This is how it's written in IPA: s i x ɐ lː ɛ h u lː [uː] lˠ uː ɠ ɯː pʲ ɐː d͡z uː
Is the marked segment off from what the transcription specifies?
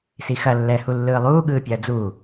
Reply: yes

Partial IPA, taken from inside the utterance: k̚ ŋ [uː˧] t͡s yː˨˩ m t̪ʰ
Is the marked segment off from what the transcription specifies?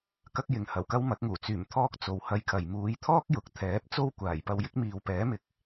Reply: yes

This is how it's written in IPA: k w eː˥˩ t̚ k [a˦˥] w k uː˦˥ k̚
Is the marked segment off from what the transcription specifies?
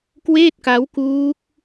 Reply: no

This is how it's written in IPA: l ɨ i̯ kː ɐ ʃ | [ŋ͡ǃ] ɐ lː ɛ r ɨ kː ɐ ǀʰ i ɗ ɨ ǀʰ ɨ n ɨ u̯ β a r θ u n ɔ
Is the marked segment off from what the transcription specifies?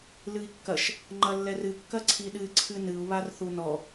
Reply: no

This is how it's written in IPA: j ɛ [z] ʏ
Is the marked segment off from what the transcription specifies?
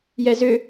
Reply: no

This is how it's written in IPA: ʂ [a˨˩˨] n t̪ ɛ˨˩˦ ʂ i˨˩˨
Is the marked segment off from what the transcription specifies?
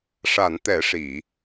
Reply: no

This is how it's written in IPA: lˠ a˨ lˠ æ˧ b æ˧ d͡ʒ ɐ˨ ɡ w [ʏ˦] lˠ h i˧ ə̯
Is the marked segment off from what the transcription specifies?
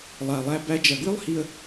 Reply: no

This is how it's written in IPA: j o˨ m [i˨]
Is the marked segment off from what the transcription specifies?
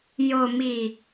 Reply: no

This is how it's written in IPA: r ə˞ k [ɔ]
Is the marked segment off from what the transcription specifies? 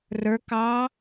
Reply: yes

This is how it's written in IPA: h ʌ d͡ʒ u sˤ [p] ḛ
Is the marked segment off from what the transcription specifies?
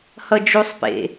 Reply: no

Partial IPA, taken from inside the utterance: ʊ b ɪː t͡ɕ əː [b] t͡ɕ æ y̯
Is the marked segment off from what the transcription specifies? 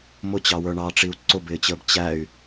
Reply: no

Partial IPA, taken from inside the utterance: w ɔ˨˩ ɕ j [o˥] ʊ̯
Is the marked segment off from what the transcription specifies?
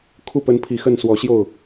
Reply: yes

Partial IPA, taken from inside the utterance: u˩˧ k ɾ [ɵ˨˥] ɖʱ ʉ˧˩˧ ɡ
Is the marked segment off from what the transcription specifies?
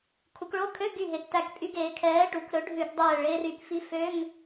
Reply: no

